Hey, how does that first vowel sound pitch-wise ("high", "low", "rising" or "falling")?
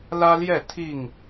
high